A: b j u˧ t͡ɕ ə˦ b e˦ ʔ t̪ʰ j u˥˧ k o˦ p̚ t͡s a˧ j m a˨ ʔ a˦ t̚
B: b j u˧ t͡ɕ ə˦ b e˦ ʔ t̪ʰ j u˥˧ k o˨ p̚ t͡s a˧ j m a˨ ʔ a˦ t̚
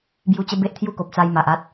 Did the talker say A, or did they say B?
B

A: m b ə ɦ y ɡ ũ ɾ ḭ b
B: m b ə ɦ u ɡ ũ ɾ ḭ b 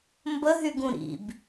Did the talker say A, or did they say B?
A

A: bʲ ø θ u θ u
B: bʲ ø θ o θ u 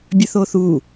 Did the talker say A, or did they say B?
B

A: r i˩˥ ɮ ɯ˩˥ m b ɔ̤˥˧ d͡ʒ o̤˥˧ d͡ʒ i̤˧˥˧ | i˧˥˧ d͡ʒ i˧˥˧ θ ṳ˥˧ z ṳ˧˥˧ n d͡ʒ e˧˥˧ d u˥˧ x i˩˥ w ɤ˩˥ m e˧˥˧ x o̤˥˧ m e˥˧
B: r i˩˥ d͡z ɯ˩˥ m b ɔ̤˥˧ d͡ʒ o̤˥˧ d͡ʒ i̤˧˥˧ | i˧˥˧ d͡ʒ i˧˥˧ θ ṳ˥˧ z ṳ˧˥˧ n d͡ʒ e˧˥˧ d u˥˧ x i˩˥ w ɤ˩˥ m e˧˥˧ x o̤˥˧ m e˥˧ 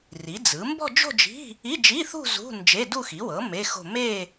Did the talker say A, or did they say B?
B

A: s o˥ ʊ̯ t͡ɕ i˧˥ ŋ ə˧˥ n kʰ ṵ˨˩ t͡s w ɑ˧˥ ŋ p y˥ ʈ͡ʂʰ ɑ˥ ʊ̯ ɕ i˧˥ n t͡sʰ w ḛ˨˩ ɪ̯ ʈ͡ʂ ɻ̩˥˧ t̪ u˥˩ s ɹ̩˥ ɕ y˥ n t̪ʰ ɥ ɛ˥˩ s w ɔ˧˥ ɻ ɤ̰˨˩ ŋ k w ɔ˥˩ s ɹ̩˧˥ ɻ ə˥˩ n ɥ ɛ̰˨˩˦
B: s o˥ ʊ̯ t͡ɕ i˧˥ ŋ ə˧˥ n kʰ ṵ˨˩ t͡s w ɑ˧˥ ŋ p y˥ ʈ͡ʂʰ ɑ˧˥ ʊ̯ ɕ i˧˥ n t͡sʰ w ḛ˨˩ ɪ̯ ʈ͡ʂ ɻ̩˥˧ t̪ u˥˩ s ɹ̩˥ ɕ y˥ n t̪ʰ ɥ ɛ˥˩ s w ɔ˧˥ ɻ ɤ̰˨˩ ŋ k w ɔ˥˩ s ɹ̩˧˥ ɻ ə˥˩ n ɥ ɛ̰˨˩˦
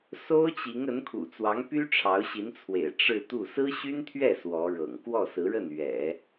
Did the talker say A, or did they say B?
B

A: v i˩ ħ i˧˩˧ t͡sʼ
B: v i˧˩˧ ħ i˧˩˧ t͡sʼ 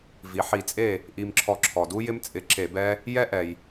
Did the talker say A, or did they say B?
A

